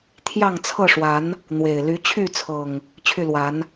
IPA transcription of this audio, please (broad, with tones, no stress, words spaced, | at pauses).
t̪ʰjɑ˥˨ŋt͡sʰɤ˥˨ʂwa˨˦n | n̪we˨˩ɪ̯ ly˨˦t͡ɕʰy˥˨t͡sʰɤ˨˩ŋ | t͡ɕʰy˥˨ lwa˨˦n